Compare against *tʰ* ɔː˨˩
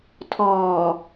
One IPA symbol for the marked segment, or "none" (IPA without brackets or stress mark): tʰ